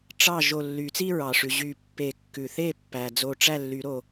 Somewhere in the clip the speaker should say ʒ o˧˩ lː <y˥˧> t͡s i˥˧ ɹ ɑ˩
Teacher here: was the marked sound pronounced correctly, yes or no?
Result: no